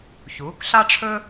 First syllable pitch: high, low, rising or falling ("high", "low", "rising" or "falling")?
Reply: rising